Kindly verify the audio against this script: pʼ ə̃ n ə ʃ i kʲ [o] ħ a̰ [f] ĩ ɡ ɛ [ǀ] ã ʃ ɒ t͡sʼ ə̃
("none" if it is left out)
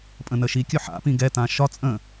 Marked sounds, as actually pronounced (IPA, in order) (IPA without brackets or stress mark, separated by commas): ɵ, p, t